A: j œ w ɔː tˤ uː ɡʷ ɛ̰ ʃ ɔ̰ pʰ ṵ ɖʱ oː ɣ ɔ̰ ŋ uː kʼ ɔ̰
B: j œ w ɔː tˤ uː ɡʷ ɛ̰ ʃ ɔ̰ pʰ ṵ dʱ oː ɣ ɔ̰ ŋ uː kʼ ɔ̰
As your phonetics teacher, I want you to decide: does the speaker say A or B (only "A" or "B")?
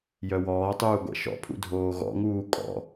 B